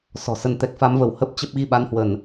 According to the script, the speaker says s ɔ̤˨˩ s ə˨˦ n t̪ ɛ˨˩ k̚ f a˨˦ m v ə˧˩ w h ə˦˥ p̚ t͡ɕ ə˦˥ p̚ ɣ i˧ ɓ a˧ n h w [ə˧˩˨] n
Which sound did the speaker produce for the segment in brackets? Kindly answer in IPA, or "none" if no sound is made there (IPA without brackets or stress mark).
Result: ə˧˩˨